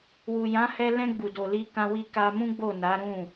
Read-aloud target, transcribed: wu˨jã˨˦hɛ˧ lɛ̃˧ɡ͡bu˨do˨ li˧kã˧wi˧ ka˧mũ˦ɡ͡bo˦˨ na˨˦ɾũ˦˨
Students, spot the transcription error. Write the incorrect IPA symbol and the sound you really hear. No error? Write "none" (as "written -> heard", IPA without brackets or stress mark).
none